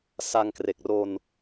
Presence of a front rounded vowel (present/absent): absent